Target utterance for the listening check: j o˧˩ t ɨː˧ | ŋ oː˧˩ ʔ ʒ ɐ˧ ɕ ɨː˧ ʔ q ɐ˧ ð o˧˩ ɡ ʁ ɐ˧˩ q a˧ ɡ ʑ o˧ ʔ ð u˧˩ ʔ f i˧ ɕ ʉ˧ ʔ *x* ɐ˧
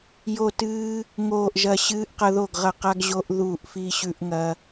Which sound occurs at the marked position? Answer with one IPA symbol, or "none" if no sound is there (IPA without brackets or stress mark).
ŋ